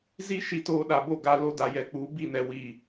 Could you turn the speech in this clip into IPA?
z i˦ ʃ i˦ t oː˦ ɗ a˨ b o˦˨ ɡ a˦ l o˦ d a˨ j ɛ˨ k͡p u˨˦ b i˦˨ n ɛ˨ w i˦˨

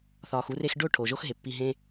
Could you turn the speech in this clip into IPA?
θ ɒː˨ x u˧ r e˧ x ɖ o˦˨ ʈʰ o˨ ʒ o˦ x ɦ e˨ pː i˧ ɦ ẽ˦

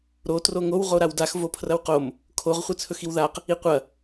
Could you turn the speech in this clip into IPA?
ɾ o t r o ŋ o w ʁ o ɾ a w d a x v o pʰ r ɐ w q o m | kʰ o ʁ χʷ ɨ t͡sʰ ɵ x i w ð a q | i qʷ ɐ

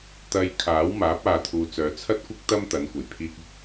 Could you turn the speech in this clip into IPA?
t̪ ɐ˧ j kʰ aː˨˥ w m aː˨˥ p̚ aː˧ t̪ʰ uː˧ t͡s œː˨˧ t͡sʰ ɐ˥ t̚ kʷ ɪ˥ k̚ t̪ ɐ˥ m t̪ ɐ˨˥ n kʷ ɐ˨˩ j pʰ iː˧ k̚ ɪ˥ k̚

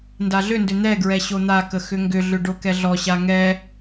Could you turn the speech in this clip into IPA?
n d a ɮ ʏ n d ʏ n̪ ɛ ɡ ɹ ɛ ɕ o n̪ a k ə x ʏ ŋ ɡ ʏ ɮ ʏ ɖ o k ɛ ɮ ɔ ɕ a ŋ ɛ

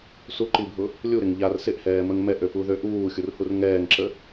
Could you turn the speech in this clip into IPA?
s u ǃ i bʱ ʊ | lʲ u ɾ ɪ ŋ ʎ a r s ɪ ʔ h ɛː m ə ŋ m ɛ ʔ ø p u ð ø ʔ uː xʲ u r h u r ŋ ɛː ŋ ǁ ə

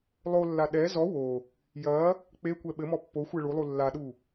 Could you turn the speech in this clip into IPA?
lˠ o lː a ɗ ɛ z ɔ w o | j ɐ | k͡p e kʷ ɛ ɓ ɘ m ɔ pː o xʷ ɛ ɭ u lˠ u lː a ɗ u

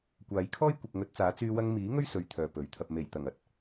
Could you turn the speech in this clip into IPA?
kʷ aː˨˧ j kʰ ɔː˥ j kʷ ɪ˨ k̚ ŋ ɵ˨˥ t̚ t͡s aː˨˥ t͡s yː˧ w ɐ˧ ŋ m iː˨˥ ŋ ɵ˥ ɥ s ɵ˧ ɥ t̪ʰ œː˨ p ɵ˨˥ ɥ t̪ʰ ɐ˧ p̚ m e˨˩ j t̪ ɐ˨˩ ŋ ɐ˨ t̚

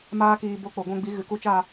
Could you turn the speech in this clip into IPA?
m aː˦ k iː˧ b o˧ k͡p o˨ ɡʷ ɛ̃˧ ɡ͡b i˨˦ ɣ ɨ˨ k u˧ t͡ʃ aː˦˨

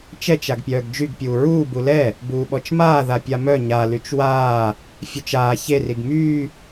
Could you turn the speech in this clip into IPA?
t͡ʃ ɛ t͡ʃ a ɡ pʲ œː ɡ d͡ʒ y ɡ pʲ uː ɹ uː b u l ɛ | b uː ɓ ɔ t͡ʃ m aː ð a pʲ a m œ ɲ a l y t͡ʃ w aː | fʲ œ t͡ʃ aː ç e r i ɡ m yː

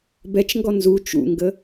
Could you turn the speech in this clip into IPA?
b ɛ t͡ʃ ŋ ɡ ɔ n z u t͡ʃ ṵ ŋ ɡ ə

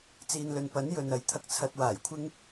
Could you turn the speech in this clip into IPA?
t͡s iː˨ n l ɵ˨ n p ɐ˨˥ n j ɵ˨ n ɐ˨ j t̪ʰ ɐ˧ k̚ t͡sʰ ɐ˧ t̚ w aː˨˩ j kʷʰ ɪ˥ ŋ

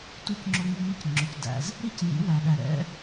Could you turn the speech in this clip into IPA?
t u˧ c ŋ͡ǁ ʊ˧ ŋ i˧ ŋ ɪ˧ c ŋ͡ǁ ʊ˩ c d æ̰˩ z | ɾ i˥ c j ḭ˩˥ w æ˩ ɗ æ˩ ɾ ɛ̰˩˥

